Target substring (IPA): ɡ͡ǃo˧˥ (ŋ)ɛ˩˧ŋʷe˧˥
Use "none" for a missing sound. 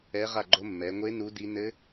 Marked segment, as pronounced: mː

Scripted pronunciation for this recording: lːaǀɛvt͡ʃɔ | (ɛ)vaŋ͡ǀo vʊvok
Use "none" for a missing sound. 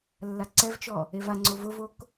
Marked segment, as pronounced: e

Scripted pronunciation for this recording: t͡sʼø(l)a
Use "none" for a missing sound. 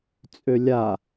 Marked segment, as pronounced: lʲ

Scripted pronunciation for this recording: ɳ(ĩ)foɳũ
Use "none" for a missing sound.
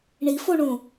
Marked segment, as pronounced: i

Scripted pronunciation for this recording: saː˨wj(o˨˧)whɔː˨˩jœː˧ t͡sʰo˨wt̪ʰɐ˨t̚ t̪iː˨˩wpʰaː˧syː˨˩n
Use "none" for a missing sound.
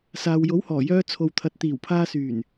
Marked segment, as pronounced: o˨˥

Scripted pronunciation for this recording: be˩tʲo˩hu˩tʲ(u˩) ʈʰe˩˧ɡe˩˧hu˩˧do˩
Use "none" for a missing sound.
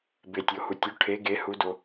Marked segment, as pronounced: u˩˧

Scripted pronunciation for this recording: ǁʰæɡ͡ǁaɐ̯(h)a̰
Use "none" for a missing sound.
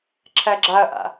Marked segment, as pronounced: ʔ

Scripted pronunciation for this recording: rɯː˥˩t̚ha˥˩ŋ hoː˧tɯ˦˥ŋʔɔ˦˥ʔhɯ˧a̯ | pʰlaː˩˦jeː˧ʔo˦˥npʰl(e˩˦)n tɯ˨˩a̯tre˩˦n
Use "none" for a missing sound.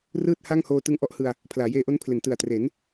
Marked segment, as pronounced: e˩˦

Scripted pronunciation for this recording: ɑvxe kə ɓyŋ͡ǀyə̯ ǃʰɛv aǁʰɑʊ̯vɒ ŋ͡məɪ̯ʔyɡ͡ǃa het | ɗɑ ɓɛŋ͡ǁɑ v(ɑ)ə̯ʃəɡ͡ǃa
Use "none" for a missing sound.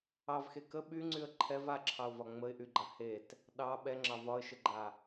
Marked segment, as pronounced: ɒ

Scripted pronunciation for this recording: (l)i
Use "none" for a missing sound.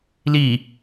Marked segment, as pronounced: l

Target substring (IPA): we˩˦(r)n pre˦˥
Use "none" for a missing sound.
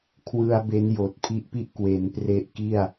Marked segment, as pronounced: none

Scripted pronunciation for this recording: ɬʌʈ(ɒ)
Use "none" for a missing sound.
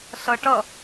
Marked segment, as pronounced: ʌ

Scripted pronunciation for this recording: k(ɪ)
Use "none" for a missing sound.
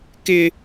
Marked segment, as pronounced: ɪ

